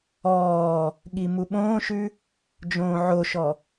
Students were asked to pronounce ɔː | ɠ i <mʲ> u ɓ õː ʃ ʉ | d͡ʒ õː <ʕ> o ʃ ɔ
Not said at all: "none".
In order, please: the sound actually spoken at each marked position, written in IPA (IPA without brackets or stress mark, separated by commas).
m, ʕ